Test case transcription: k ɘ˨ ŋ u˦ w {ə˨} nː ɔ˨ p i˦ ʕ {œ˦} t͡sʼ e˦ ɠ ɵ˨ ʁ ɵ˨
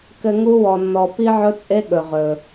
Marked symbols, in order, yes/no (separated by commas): no, no